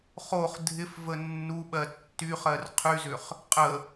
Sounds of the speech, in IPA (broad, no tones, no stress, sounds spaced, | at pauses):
χ o χ dʱ ɪ f v ə nː u ɓ ɜ tː y χ ɜ r qʰ y z ʏ χ | qʼ ə